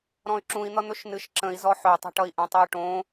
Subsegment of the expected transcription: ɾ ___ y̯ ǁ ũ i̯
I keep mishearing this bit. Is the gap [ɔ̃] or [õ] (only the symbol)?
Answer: ɔ̃